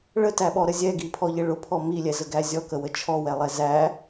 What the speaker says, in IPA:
ɭ ə t æ ɓ ɔ ɾ ə zʲ ɛ ɡ i pʰ ɔ ʎ ɪ ɭ ʊ pʰ ɔ m i lʲ ɛ z ə ɡ æ zʲ ɔ k ə w ə t͡ʃʰ ɔ w ɛ lˠ ɛ z æ

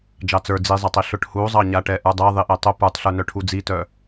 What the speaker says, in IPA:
d͡ʒ ɑ t͡s ə˞ d͡z i zˤ a tˤ i ɬ ʊ ʈ h u zˤ ɑ ɲ a ʈ ɛ ʔ ə˞ dˤ ɛ ðˤ i ʔ ɛ tˤ ʊ p ə˞ tˤ ɬ ə˞ n œ ʈʰ u d͡z i t œ

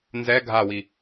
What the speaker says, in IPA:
n z ɛ ɡʱ a w i

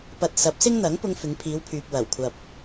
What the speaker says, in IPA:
p ɐ˧ t̚ s ɐ˨˥ p̚ s ɪ˥ ŋ n̪ ɐ˨˥ ŋ p ʊ˧ ŋ f ɪ˨˧ ŋ pʰ iː˨˧ w pʰ yː˨ p̚ w ɐ˨˩ w kʷʰ ɐ˨ p̚

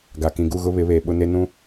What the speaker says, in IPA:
ɡ a˨ k ĩ˨ ɡ u˦˨ ɣ ʊ˦ β ɪ˨˦ β eː˨ ɓ ʊ˦ n e˦ n ũ˦

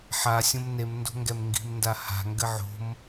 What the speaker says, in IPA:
ħ a sʲ õ m n e m n d o̤ ŋ ɡ ɛ m ŋ ɡ i̤ m n d a h a̤ ŋ ɡ ɘ ʕ o̤ m

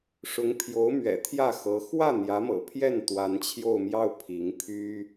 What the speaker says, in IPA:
ʂ ʊ˧˥ ŋ pʰ j o˧˥ ʊ̯ m ɥ ɛ̰˨˩ t̪ʰ j ä˥˩ x ɤ˧˥ x w ä˥˩ n̪ j ä˧˥ m ɤ̰˨˩ pʰ j ɛ˥˩ n t̪ w a˧˥ n t͡ɕʰ j o˥˧ ʊ̯ m j ɑ˥˩ ʊ̯ pʰ i˧˥ ŋ pʰ y˥

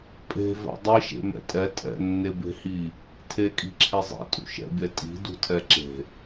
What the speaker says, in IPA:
pʼ e̤ v ɛ̰ dˤ i ʃ ḛ m ɛ̰ tʼ ɛ tʼ ɛ̰ nː e b e̤ h i | tʰ e kʼ i̤ ǁʰ e zˤ ḭ tʼ ṵ ʃ ɛ̰ bʲ ɛ tʼ i̤ d ṳ tʰ ɛ ǁ e̤

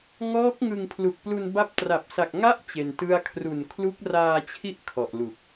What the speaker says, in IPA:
ŋ ɔː˦˥ k̚ ŋ ɯ˧ ŋ pʰ l u˨˩ k̚ p l u˧ n b a˦˥ p̚ t r a˨˩ p̚ s a˨˩ k̚ ŋ a˦˥ ʔ t͡ɕ e˧ n t ɯ˥˩ a̯ kʰ r u˨˩ n kʰ l u˦˥ k̚ r aː˧ t͡ɕʰ i˦˥ ʔ kʰ ɔ˨˩ ʔ l u˨˩ k̚

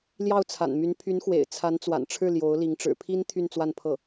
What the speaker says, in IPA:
l j ɑ˥˩ ʊ̯ t͡sʰ a̰˨˩ n m y˧˥ n pʰ y˧˥ n x w ḛ˨˩ ɪ̯ t͡sʰ a˧˥ n t͡s w a̰˨˩ n ʈ͡ʂʰ ɻ̩˥˩ l j o˧˥ ʊ̯ l i˧˥ ŋ ʈ͡ʂ ɻ̩˨˩ pʰ i˥ n t̪ʰ y˥˧ n t͡s w a˥˧ n pʰ ɤ˥˩

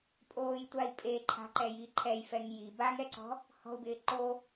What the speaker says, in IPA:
pʼ oː j tʷ a i̯ pʼ e ǃʰ a̤ ǃ ɛ j i ǃʰ ɛ j f ɛ ŋ j i b a ŋ ɛ ǀ ɔ̤ | h ɔ̤ u̯ b ɪː ǃ o

